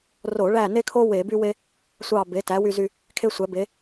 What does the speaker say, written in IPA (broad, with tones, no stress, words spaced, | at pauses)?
ro˧˩˧ɭæ˦˨ne˥kʰo˥ we˧˩˧by˥we˥ | sʷɑ˦˨ be˩˥tæ˩˥wy˦˨zy˦˨ | kʰe˥sʷæ˩˥be˩˥